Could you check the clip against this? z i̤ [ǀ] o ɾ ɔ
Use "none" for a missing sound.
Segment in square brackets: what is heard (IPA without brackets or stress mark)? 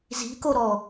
k